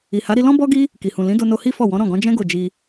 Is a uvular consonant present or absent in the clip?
absent